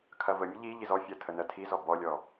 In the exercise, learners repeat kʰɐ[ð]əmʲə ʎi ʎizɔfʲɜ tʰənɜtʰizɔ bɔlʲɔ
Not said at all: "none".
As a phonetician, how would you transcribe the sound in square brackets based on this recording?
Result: v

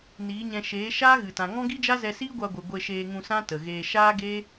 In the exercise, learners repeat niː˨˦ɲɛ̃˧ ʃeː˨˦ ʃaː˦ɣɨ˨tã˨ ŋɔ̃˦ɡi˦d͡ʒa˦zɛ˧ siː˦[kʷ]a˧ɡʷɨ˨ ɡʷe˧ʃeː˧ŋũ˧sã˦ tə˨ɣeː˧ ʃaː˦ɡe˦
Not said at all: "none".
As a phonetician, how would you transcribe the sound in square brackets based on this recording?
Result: ɡʷ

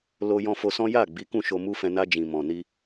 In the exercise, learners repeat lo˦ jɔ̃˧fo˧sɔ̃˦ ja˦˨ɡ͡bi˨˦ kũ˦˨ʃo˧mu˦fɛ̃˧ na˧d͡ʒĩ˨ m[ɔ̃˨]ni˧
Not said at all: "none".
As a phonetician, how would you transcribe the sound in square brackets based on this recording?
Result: ɔ̃˨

